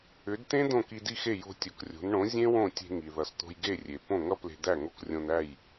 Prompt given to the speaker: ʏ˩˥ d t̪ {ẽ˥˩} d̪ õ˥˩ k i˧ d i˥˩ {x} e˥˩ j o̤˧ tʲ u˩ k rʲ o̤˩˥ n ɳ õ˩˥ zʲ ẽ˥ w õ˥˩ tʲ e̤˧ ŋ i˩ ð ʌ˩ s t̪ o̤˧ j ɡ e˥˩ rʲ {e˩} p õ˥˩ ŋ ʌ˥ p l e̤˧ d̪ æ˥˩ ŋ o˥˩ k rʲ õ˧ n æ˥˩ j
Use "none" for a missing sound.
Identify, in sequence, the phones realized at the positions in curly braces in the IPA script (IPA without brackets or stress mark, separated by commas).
ẽ˥, x, e˩